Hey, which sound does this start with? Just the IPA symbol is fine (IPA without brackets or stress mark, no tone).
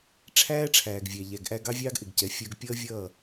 ʈ͡ʂʰ